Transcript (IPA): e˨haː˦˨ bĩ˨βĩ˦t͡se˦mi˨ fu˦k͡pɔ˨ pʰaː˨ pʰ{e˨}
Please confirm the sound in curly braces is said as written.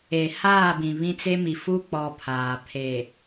yes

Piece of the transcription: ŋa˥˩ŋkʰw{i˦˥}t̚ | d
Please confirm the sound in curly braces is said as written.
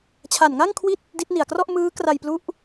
no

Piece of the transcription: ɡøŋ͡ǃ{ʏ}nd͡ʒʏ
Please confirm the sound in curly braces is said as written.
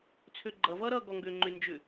yes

